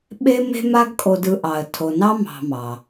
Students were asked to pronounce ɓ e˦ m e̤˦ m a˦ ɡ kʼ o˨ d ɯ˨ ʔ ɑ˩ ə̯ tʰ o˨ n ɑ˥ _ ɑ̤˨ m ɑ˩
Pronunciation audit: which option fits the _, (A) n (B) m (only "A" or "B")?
B